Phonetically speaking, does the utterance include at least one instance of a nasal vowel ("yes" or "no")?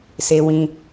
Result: yes